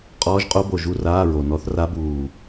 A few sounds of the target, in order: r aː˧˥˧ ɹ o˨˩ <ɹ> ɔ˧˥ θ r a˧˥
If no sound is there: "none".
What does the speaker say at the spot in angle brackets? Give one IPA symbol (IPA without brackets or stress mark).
n